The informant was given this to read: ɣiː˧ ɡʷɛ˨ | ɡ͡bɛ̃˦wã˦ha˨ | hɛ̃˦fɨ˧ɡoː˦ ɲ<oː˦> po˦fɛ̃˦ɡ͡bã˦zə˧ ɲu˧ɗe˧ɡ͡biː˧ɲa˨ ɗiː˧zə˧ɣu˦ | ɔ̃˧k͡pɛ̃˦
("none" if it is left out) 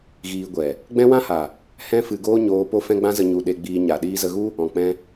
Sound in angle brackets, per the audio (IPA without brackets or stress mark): oː˦